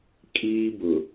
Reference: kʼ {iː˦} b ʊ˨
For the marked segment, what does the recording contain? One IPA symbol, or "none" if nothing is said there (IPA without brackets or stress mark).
iː˦